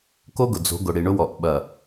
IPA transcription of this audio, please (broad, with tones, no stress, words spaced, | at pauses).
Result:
ko˦ɡʊ˨d͡zo̤˨˦ɡʊ˨ ɽi˨ɳʊ˦wɔ˨ʔ ɓɐ˨